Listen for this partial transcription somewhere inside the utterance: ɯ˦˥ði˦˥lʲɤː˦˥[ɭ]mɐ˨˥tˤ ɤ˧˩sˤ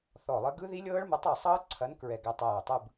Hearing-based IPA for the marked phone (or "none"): ɭ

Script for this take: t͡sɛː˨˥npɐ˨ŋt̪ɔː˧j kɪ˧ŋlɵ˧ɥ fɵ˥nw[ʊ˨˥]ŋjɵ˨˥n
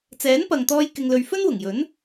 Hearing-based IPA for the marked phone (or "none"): ʊ˨˩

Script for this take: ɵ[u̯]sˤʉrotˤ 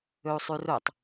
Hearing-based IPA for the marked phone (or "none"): u̯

